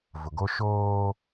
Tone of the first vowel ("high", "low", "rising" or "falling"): low